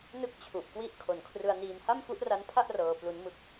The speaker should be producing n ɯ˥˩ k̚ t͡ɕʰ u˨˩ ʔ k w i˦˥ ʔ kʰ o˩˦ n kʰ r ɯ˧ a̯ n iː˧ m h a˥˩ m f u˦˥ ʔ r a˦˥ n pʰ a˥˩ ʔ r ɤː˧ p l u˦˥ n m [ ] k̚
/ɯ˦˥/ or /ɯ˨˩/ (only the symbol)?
ɯ˦˥